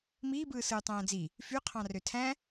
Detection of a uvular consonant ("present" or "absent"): present